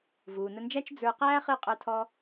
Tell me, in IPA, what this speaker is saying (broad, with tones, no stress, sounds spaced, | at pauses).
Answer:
v uː˩ n ə˧ n d͡ʒ æ˥ t͡ʃ d͡z ə˞˧ q æː˥ χ ɨ˥˩ qʼ ə˞˧ tʰ ɔ˧